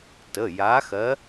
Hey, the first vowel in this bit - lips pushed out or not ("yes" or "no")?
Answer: no